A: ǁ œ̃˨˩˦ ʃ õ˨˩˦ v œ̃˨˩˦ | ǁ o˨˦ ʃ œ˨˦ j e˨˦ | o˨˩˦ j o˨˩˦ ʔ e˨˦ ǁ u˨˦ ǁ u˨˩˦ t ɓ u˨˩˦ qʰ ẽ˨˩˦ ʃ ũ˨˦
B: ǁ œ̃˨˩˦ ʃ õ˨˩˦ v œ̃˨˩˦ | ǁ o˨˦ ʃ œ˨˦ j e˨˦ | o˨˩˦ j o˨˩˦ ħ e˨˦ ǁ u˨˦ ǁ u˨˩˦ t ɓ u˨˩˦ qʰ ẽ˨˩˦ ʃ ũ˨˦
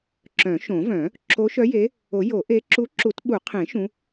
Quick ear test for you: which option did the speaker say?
A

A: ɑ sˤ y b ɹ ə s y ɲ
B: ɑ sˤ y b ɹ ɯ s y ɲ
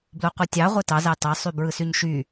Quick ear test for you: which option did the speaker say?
B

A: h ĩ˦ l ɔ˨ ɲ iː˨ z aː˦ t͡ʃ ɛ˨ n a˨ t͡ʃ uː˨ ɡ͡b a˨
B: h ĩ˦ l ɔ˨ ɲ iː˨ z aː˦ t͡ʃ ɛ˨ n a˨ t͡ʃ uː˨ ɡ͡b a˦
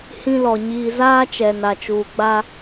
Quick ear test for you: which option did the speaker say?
B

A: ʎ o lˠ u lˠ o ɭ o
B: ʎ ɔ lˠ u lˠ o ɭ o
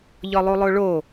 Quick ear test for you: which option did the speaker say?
B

